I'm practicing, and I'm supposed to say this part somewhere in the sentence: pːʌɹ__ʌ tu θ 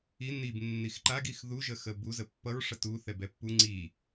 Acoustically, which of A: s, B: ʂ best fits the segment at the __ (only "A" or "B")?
B